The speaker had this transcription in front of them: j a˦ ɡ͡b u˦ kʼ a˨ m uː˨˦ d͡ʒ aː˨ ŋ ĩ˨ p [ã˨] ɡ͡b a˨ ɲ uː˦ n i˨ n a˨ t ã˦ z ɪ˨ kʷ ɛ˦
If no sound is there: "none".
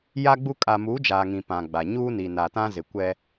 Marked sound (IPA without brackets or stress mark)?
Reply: ã˨